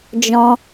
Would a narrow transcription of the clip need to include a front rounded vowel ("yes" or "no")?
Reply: no